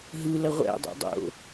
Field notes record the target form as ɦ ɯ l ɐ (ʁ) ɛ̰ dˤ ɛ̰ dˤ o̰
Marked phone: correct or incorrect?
incorrect